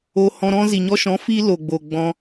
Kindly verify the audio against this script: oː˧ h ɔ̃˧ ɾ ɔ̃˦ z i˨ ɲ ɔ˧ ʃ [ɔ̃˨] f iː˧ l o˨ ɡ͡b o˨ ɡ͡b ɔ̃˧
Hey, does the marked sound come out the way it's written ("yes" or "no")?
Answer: no